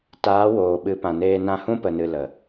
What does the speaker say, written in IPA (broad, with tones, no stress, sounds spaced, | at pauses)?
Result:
t aː˨˦ w oː˨ ɓ ɨ˨˦ p ã˨ n eː˧ n ã˧ h ũ˦ p ə˨ n ɨ˨ l ə˨